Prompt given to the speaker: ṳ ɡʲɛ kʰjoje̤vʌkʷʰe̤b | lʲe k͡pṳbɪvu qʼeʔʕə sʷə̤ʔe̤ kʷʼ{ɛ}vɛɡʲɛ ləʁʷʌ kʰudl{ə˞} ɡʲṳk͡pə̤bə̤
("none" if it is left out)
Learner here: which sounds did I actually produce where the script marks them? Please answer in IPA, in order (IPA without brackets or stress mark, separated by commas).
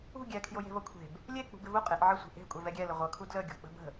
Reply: ɛ, ə